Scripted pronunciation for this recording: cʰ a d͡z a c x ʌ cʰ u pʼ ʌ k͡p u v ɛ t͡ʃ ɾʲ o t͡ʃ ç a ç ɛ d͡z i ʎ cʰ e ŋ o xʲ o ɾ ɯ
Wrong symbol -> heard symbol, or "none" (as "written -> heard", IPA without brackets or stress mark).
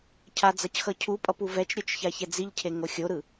k͡p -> p